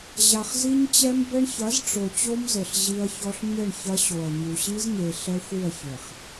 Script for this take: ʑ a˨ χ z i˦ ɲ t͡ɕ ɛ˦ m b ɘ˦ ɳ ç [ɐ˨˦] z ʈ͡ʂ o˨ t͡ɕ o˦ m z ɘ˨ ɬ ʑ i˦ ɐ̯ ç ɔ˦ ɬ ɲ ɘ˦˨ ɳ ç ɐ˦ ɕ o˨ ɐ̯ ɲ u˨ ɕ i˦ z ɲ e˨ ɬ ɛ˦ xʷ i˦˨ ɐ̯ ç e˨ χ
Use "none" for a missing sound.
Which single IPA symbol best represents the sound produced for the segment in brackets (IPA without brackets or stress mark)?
ɐ˨˦